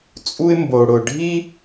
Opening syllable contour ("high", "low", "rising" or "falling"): high